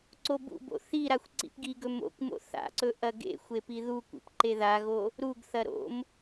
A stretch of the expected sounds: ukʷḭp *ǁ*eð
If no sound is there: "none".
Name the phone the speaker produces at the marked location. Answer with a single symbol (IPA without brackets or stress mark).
ǃ